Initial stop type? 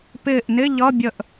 plain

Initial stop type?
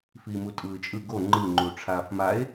ejective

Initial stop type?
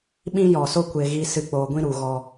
implosive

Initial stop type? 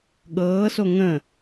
implosive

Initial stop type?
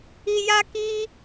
plain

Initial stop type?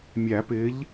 plain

